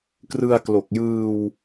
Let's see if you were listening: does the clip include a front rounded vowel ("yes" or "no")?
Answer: no